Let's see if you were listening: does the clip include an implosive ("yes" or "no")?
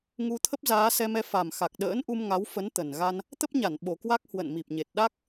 yes